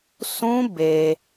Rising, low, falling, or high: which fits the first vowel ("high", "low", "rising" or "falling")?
high